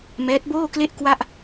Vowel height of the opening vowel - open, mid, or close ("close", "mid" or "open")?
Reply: mid